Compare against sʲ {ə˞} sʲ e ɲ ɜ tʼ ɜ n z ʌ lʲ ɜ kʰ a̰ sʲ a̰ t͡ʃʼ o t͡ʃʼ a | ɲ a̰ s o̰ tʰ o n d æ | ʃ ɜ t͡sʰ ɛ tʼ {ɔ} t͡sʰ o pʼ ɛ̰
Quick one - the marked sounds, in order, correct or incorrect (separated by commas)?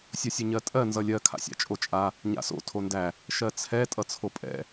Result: incorrect, incorrect